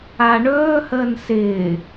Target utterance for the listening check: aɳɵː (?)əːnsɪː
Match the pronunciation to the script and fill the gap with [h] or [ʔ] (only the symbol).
h